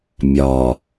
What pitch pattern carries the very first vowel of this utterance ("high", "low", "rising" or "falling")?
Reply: low